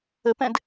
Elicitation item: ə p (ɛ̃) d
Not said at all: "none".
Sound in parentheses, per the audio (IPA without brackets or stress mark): ɛ̃